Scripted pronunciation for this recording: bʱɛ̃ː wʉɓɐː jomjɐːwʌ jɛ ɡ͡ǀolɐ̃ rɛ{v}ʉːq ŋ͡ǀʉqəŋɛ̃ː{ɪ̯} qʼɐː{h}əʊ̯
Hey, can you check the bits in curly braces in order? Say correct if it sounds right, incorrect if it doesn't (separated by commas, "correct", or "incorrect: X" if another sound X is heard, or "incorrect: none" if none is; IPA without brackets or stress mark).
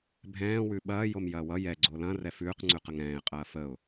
incorrect: f, correct, incorrect: f